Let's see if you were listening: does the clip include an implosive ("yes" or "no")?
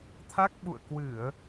yes